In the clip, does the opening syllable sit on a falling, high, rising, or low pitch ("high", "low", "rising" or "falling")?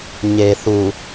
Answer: low